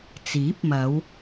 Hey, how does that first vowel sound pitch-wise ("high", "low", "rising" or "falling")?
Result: rising